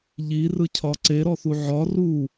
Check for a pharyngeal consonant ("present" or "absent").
present